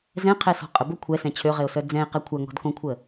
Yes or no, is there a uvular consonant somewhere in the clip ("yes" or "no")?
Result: yes